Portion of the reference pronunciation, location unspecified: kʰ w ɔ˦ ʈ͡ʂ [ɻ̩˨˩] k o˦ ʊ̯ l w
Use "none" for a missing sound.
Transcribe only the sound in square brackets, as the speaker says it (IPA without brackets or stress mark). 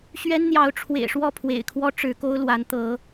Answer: ɻ̩˨˦